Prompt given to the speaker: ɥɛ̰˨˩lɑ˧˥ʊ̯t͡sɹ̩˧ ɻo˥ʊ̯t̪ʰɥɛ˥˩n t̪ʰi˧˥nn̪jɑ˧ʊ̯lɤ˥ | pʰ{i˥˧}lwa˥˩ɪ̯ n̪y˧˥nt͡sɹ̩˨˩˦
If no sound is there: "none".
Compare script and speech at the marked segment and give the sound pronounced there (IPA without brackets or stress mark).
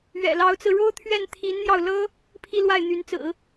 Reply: i˥˧